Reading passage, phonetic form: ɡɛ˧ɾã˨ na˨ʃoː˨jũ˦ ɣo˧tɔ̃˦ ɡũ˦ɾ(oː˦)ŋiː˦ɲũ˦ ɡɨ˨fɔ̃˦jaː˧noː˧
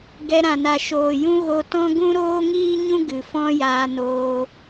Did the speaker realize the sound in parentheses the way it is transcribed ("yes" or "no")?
yes